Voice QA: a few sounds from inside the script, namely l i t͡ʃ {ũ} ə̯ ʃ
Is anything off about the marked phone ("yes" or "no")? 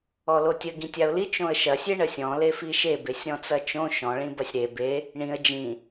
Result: yes